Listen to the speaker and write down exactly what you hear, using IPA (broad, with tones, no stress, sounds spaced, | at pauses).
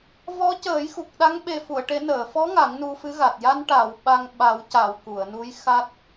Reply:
v ɔ˧˥ c əː˨˩˦ j x u˨˩ k̚ ɗ a˧˥ ŋ ɓ e˨˩ f u˨˩˨ ə̯ ʈ e˨˩˦ n əː˨˩˨ f ɔ˧˥ ŋ a˨˩˦ ŋ n u˧ f ɨ˧˥ ɣ a˨˩ t̚ j a˧ n ʈ a˨˩˨ w ɓ a˧ ŋ ɓ a˨˩˦ w c a˨˩˨ w k u˨˩˨ ə̯ n u˧˥ j x a˦˥ t̚